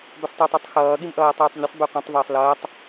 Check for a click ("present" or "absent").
absent